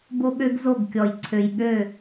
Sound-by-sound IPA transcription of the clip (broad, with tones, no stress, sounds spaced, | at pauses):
b o˦ ɠ ø˦ ɡ z o˦˨ ɡ kʲ ɔ˨ j ǀʰ ø˨ j ɠ ø˦˨